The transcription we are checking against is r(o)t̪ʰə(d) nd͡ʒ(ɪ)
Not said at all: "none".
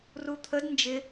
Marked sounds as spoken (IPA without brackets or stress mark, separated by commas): u, d, ɪ